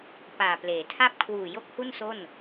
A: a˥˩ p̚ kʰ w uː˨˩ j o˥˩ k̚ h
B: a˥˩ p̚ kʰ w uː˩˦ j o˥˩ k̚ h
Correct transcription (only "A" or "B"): A